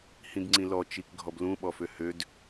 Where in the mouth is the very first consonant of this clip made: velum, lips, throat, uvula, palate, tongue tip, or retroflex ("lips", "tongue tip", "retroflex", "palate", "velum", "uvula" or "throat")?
throat